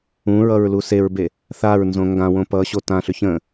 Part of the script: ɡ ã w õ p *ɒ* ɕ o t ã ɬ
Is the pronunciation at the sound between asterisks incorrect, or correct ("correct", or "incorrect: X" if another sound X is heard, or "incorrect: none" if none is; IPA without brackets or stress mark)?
incorrect: ʌ